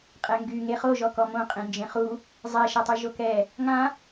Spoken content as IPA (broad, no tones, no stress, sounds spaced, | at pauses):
qʼ ɛ ŋ ɡ y ŋ e χ o ʒ ɔ k ɔ m õ qʼ ẽ n d͡ʒ ẽ χ u | zˤ ɛ ʃ a tˤ y ʒ o k ɛ | ŋ ã